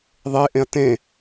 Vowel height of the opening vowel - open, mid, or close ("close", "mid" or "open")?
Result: mid